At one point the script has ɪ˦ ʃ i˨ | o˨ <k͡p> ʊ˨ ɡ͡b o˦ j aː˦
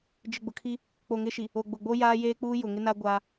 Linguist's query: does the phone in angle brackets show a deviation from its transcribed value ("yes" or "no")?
yes